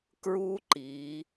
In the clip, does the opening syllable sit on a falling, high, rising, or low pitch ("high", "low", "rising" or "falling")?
high